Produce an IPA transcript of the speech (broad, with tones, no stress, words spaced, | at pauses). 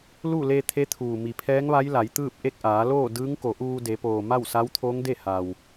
lu˥˨le˧ t̪ʰe˧˥t̪ʰuː˩ mi˩pʰɛː˧˥ŋʋa˧˥j la˩˧jt̪ɯː˥˨p̚ ʔe˥˨k̚ʔaː˩˧loː˥˨ dɯː˧˥ŋko˩˧ ʔuː˧ de˩˧poː˩ma˥˨w sa˧˥wt̪ʰoː˧˥ŋde˥˨ ha˩w